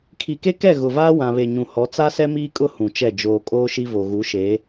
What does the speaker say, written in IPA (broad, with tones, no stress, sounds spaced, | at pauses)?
kʰ i˨ k e˦ k ɛ˦˨ ɣ ʊ˨ v aː˦ w ã˨ β e˨ ɲ ũ˨ h ɔ˨˦ t͡s a˦ s ɛ˦ m iː˦ kʼ ʊ˦ h ũ˨ t͡ʃ ɛ˦˨ d͡ʒ oː˨ kʼ oː˦ ʃ i˦ v o˨ ɣ u˨˦ ʃ eː˨˦